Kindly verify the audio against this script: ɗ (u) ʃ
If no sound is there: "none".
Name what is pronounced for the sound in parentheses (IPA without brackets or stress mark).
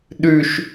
ʉ